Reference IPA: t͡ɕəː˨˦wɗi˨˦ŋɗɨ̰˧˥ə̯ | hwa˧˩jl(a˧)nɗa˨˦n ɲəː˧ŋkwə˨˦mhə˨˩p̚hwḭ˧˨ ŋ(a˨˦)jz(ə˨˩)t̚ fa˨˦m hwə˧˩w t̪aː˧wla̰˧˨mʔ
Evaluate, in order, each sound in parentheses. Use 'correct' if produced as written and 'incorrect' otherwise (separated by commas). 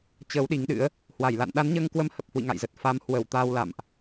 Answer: incorrect, incorrect, correct